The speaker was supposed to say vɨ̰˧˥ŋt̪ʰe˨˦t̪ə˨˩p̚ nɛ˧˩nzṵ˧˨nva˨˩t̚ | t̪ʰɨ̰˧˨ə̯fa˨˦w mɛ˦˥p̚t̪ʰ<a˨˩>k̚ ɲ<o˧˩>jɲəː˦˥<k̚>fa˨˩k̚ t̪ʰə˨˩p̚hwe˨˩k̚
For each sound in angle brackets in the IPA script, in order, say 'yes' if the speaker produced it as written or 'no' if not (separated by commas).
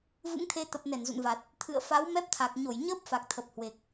yes, yes, no